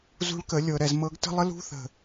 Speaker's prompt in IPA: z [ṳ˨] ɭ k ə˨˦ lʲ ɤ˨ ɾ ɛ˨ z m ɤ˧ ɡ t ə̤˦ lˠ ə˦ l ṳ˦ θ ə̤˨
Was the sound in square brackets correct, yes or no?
no